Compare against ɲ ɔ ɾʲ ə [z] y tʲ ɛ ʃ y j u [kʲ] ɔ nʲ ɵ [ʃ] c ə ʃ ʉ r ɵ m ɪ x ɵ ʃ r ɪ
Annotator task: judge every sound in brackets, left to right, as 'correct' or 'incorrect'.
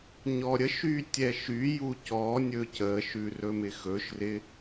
incorrect: ʃ, incorrect: c, incorrect: none

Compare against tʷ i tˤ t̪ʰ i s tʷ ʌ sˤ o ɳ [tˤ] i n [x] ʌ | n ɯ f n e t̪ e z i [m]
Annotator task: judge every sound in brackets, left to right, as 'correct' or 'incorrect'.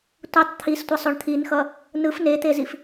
incorrect: t̪ʰ, correct, incorrect: f

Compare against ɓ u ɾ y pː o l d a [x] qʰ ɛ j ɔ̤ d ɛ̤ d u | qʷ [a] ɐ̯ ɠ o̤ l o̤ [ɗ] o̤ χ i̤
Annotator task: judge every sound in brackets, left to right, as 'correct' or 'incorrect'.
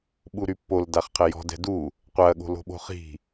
incorrect: χ, correct, incorrect: ɓ

